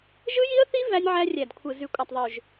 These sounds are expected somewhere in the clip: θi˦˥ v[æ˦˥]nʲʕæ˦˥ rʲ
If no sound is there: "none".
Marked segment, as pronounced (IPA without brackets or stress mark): æ˦˥